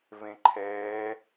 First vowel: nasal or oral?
nasal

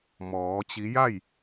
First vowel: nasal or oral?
oral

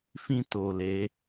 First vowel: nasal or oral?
nasal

